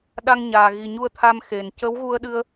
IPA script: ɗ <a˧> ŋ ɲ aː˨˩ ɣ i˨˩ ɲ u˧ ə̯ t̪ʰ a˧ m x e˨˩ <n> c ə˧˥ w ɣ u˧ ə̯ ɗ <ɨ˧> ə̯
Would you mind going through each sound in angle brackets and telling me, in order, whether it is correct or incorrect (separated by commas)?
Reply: correct, correct, correct